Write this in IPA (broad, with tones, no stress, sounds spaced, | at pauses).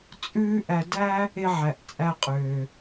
t͡sʼ ʉː˦ ʔ æ˧ d æ˦ | e˧ ʕ æ˨ ʔ t͡sʼ æ˧ qʼ øː˨